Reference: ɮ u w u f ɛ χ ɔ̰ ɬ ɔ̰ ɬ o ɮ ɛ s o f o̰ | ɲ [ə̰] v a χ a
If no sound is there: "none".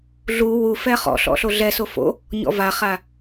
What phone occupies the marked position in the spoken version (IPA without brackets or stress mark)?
ɔ̰